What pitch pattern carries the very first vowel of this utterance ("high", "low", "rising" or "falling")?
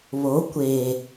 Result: rising